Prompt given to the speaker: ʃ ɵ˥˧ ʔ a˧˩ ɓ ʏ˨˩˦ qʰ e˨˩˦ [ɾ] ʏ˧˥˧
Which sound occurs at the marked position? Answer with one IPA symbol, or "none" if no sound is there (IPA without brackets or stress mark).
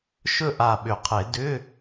d